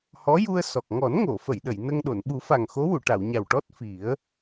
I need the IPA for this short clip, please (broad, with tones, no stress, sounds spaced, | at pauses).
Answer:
h ɔ˧˥ j u˧ ə̯ s ɔ˨˩ k̚ ŋ ɔ˨˩˦ n ŋ o˨˩˨ f ə˨˩˨ j ɗ ə˨˩˨ j n ə˧ ŋ ɗ o˨˩˨ n ɓ u˨˩˦ f a˨˩ ŋ x o˧˥ w u˨˩˨ ʈ a˨˩˨ w ɲ a˨˩ w ʈ ɔ˦˥ t̚ f i˨˩˦ ə̯